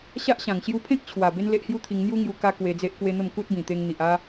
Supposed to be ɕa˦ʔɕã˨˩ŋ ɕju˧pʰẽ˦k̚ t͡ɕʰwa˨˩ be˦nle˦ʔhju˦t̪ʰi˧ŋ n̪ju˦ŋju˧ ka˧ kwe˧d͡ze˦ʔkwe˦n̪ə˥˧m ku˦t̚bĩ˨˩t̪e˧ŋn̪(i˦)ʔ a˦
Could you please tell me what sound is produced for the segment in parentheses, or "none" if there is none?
i˨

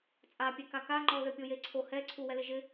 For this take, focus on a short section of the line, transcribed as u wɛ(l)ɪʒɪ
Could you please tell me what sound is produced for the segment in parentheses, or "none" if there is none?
l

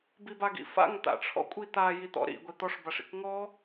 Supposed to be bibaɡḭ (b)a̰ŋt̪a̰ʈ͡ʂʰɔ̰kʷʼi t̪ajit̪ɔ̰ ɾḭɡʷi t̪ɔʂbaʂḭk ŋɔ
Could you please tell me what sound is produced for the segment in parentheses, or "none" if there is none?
f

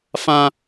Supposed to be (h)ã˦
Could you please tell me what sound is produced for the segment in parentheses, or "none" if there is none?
f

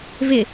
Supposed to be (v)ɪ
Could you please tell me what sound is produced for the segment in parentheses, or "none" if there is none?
v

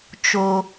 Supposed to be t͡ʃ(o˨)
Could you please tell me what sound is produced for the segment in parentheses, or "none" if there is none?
o˦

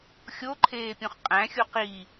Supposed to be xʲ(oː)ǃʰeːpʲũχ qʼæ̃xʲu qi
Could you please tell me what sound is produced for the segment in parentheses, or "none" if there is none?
o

